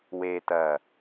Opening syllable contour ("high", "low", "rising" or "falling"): low